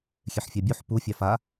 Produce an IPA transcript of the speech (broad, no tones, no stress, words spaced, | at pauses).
xʲeħfʲɑbʲuħ pu fʲɑfa